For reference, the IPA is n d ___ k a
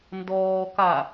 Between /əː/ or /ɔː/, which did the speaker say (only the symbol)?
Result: ɔː